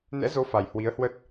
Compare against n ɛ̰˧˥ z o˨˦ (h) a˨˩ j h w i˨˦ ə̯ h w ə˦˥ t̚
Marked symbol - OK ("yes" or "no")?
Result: no